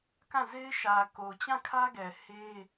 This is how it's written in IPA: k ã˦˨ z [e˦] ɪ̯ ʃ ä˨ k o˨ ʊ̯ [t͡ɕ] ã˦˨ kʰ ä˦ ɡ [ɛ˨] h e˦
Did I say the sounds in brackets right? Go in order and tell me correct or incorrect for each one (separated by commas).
correct, correct, correct